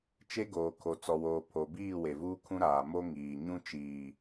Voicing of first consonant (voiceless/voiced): voiceless